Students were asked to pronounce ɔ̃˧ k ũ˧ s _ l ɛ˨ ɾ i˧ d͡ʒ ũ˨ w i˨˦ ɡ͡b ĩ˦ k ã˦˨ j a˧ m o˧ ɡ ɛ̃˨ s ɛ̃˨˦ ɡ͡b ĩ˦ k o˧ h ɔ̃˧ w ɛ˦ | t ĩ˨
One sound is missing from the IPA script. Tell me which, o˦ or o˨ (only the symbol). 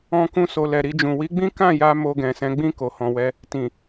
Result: o˨